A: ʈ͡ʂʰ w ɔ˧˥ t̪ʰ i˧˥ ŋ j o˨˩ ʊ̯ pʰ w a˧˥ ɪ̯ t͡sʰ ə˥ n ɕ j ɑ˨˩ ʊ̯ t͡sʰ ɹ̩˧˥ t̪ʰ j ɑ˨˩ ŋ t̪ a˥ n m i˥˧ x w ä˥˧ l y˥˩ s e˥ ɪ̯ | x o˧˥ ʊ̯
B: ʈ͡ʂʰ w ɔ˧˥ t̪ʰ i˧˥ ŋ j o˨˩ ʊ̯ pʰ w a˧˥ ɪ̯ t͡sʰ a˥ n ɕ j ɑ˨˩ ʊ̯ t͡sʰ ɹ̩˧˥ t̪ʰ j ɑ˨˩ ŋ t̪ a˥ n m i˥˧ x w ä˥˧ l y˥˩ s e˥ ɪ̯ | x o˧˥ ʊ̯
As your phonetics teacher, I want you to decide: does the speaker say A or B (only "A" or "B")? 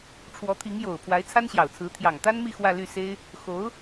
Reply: B